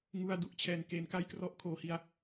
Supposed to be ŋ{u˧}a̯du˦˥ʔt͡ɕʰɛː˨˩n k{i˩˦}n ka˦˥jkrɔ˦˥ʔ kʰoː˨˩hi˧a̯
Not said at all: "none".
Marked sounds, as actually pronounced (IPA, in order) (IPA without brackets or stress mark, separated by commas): u˧, e˩˦